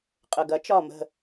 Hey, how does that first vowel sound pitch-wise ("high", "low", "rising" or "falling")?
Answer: low